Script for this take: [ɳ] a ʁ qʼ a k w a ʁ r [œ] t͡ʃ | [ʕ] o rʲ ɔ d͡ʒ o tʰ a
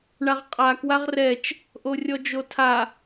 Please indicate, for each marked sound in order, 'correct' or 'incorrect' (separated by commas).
correct, incorrect, incorrect